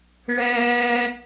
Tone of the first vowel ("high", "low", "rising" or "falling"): high